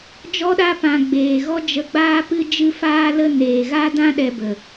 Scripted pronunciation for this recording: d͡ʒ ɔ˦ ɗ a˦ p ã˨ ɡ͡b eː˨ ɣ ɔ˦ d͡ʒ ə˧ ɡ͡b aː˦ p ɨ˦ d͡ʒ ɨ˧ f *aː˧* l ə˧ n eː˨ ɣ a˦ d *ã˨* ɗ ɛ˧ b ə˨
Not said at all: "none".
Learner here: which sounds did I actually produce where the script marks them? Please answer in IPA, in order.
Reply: aː˧, ã˦

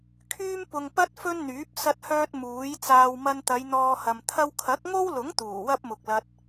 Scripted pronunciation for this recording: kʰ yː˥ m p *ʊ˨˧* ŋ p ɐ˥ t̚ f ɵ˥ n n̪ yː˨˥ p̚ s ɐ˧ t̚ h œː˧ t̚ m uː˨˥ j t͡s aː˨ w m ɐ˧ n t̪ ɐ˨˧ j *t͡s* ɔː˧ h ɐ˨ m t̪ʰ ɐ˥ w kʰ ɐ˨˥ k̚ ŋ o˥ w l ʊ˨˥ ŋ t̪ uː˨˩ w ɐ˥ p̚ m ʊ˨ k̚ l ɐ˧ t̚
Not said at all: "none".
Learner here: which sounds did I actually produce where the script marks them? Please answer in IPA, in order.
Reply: ʊ˨, n̪

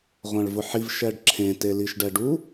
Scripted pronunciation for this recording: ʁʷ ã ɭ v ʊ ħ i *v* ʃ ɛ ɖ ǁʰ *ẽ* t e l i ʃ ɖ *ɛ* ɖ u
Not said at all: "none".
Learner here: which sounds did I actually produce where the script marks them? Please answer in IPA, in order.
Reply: v, ẽ, ɛ

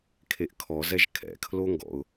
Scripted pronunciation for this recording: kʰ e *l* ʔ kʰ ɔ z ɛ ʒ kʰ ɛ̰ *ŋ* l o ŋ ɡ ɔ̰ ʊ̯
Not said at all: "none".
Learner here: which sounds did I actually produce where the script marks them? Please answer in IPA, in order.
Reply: none, kʰ

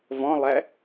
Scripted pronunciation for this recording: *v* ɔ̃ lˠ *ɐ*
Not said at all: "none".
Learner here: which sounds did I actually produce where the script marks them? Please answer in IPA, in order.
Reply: v, æ

